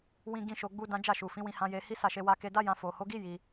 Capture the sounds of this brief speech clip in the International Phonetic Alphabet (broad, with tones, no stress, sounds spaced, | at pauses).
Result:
w ĩ˧ ɡ ĩ˧ ʃ o˧ ɡ͡b u˦ d ã˦ d͡ʒ a˦˨ ʃ u˨ f ĩ˨˦ w ĩ˧ h ã˧ j e˧ h i˦ s a˦˨ ʃ e˧ w a˦ k e˧ d a˦ j ã˧ f o˨ h o˨˦ ɡ i˦ j i˧